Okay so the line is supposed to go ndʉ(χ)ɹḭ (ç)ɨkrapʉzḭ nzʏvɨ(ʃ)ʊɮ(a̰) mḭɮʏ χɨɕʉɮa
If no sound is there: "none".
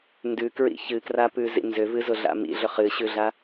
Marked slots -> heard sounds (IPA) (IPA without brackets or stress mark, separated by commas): k, ç, z, a̰